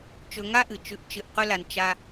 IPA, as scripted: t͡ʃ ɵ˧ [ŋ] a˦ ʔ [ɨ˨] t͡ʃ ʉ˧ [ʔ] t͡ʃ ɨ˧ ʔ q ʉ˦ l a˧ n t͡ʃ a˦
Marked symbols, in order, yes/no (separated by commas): yes, yes, yes